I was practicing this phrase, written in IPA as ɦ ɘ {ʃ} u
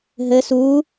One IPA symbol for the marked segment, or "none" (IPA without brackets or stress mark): s